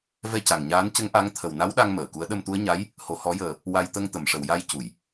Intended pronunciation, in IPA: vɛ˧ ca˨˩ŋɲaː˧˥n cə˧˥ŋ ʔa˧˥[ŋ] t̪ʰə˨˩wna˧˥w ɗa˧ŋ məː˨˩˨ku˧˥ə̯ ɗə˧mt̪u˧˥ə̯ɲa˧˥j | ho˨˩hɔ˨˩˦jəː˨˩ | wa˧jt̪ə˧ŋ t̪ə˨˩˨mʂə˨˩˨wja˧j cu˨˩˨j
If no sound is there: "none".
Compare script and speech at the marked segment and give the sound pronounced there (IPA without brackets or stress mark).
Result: ŋ